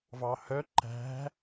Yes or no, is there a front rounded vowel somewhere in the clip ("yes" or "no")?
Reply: yes